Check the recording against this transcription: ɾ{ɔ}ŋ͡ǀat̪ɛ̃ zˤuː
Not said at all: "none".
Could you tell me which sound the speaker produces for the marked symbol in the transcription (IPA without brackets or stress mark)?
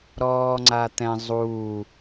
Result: ɔː